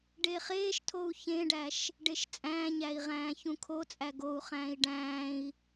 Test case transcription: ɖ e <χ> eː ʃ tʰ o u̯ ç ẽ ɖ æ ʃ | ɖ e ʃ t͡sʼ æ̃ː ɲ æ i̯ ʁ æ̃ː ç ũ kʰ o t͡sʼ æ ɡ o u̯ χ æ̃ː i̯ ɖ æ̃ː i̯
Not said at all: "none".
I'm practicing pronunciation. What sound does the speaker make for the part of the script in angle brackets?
χ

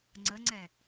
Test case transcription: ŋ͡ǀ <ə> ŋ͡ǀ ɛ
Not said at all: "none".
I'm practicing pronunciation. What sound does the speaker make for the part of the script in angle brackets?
ə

